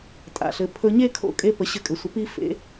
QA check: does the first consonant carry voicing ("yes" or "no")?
no